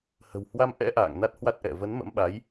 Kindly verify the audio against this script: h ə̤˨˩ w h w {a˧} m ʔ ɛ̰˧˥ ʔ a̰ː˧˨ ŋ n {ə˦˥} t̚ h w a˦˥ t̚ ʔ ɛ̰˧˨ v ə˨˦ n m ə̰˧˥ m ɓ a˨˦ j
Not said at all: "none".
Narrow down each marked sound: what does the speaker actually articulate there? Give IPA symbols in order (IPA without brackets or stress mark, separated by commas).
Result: a˧, a˦˥